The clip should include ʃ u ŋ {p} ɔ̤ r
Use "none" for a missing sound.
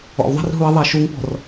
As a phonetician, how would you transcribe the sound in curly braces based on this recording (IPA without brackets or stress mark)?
p